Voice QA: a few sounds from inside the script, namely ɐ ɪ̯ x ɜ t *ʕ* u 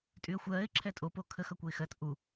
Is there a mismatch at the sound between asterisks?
yes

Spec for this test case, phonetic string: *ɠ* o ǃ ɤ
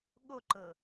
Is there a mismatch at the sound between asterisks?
no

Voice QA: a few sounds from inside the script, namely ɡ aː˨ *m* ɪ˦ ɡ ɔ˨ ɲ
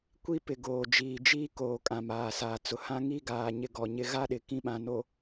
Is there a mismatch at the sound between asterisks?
yes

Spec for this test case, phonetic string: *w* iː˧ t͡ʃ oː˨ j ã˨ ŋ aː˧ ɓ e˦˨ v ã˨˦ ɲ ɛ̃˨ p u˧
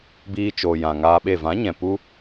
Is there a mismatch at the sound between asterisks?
yes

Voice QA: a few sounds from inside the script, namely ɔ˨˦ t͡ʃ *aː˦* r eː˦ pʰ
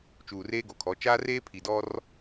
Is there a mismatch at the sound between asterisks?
no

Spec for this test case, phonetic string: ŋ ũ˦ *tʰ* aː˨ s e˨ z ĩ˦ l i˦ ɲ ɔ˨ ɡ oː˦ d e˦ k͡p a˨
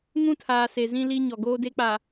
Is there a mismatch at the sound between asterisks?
no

